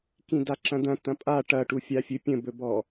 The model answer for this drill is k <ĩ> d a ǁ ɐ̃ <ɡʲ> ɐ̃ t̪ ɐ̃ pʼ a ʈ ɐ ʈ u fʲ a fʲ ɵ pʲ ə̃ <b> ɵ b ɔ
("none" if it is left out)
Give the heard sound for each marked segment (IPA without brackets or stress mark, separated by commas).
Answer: ĩ, d̪, b